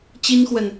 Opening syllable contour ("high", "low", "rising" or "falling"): high